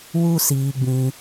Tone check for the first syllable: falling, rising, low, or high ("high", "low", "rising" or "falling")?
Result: high